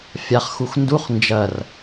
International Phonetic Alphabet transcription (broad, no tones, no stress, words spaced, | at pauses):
fʲaχxux nduχ nd͡ʒɐr